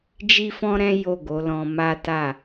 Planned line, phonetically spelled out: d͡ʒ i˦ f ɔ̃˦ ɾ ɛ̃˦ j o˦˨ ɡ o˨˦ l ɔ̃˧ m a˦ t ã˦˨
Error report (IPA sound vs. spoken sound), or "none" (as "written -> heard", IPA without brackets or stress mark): ã˦˨ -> a˦˨